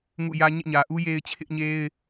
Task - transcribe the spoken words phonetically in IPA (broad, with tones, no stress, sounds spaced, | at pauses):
ŋ ṵ˦˨ j ä˦ ɲ ḛ˦˨ ɲ ä˨ ʔ u˦ j e˦ ɪ̯ t͡ɕʰ ɪ˦ ʔ ɲ e˦ ɪ̯